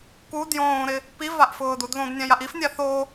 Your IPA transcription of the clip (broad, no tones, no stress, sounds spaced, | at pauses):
k u d j õː ɾ ɪ | p i v a ʔ f ʊː d u d ð õ d nʲ ã j a ʔ i f nʲ a θ o